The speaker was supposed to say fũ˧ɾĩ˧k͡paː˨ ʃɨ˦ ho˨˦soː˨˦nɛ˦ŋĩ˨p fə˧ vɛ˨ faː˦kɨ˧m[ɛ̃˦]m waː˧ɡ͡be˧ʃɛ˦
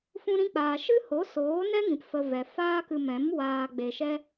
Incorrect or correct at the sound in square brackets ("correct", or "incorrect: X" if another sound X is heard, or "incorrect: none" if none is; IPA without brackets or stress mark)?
incorrect: ɛ̃˨˦